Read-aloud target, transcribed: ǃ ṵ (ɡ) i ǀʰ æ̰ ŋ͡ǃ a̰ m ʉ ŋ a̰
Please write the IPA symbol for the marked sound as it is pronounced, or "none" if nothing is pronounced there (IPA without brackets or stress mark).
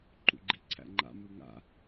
ɡ͡ǃ